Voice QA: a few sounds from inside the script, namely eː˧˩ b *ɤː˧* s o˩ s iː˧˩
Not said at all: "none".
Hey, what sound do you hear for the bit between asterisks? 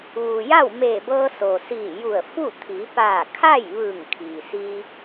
ɤː˧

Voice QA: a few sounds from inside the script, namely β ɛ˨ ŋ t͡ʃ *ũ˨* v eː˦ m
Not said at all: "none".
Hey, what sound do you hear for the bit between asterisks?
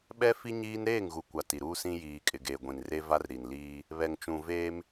ũ˨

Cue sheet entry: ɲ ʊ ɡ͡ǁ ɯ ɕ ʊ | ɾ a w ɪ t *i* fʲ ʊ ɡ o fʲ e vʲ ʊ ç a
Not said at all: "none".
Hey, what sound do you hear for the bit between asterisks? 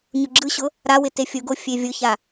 e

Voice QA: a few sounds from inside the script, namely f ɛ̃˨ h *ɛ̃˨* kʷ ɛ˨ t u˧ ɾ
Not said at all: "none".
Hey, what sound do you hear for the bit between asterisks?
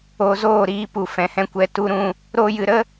ɛ̃˧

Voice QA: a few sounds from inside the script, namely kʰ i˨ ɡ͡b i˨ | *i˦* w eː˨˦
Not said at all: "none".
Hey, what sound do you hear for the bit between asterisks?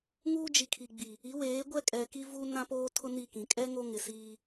i˨˦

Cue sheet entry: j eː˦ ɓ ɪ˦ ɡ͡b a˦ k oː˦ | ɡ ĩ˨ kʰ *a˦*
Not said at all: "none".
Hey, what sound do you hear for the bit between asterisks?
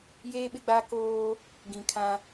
ã˦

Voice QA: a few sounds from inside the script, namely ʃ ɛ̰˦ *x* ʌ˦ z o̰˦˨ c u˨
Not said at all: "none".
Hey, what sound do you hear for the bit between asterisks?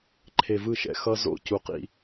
x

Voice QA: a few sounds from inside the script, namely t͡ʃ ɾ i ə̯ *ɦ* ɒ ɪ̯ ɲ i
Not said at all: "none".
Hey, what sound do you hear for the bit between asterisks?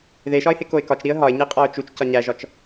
ɦ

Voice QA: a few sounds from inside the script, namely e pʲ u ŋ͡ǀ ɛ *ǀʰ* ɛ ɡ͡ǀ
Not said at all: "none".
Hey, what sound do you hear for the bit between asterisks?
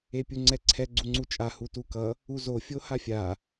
ǀʰ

